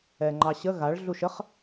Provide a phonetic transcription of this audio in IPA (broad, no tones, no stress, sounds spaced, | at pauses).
ɛ ŋ͡ǃ ɑ ɕ ə ɣ a ɭ ɮ u ʃ ə χ